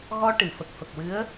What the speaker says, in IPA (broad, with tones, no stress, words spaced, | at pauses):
ɣɔ˧ ʈɨ˨˩˨fə˨˩k̚fə˨˩k̚wɨ˧˥ə̯